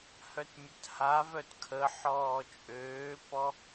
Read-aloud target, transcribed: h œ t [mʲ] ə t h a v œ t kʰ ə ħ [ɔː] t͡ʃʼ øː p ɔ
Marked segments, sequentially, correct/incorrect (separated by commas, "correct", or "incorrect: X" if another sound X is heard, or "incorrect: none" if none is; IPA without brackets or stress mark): correct, correct